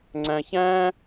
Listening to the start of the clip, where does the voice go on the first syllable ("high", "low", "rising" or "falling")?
high